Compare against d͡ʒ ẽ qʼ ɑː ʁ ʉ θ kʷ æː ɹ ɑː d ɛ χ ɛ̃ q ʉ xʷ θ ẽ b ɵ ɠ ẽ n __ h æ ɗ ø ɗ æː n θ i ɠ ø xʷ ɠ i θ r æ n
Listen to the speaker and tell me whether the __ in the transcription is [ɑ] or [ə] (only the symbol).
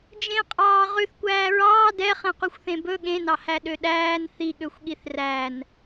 ɑ